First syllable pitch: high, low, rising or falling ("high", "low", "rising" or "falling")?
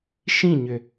falling